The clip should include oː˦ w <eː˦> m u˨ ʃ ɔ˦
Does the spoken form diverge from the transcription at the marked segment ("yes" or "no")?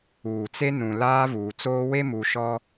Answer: yes